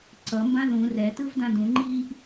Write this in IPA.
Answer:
ǀ ʌ m b ã ð ũ r ɛ t ɯ v d ã d ũ ŋ͡ǃ iː ʔ

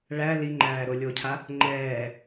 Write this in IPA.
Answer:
ɭ æ l i ŋ͡ǃ æː ɾ o lʲ o cʰ a | ŋ͡ǃ ɛː

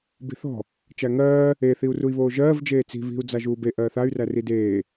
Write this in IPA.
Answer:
b i̤ θ ɔ̤ | t͡ʃ æ ŋ ɜː | e θ i u̯ r u i̯ β oː ʒ ɜː v d͡ʒ eː t͡s i̤ β i̤ u̯ d͡z a ʒ uː b e ʔ ɜː θ a y̯ r æ r i d eː

